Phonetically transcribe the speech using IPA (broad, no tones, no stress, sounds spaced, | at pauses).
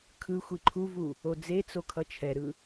kʰ ɯ xʷ i ǃʰ u v u | o d͡z e t͡s o kʰ ʌ t͡ʃʰ ɛ ɾ ɯ